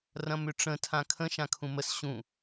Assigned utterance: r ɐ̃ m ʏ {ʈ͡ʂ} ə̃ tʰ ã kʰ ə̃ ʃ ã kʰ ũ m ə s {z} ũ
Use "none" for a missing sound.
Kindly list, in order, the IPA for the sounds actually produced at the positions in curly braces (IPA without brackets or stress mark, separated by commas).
ʈ͡ʂ, ɕ